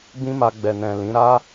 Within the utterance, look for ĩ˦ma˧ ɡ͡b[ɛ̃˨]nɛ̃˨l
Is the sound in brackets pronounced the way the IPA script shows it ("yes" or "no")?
no